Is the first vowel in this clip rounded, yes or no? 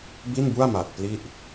no